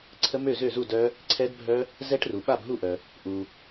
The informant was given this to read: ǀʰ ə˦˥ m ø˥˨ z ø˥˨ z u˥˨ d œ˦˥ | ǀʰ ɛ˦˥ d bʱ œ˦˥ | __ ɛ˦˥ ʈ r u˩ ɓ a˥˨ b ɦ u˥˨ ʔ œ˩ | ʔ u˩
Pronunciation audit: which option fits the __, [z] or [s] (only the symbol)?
z